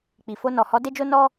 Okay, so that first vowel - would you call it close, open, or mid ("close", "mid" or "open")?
close